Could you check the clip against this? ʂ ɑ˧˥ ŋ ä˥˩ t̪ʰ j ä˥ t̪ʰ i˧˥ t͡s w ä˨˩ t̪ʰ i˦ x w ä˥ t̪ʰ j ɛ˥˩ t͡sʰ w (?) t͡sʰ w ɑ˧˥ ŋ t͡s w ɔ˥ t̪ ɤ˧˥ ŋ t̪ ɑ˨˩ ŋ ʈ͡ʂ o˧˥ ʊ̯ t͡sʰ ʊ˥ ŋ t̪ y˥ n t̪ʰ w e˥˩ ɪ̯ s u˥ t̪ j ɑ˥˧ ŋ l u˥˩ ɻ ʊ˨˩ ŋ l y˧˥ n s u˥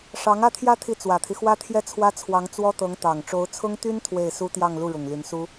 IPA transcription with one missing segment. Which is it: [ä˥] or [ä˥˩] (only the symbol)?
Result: ä˥